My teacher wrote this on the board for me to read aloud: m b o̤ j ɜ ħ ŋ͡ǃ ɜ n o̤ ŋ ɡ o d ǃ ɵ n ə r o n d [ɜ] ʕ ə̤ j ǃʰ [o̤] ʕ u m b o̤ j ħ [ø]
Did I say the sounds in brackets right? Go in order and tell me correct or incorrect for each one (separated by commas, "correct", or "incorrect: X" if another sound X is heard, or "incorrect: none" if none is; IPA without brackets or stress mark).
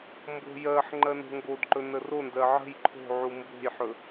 correct, correct, incorrect: ɵ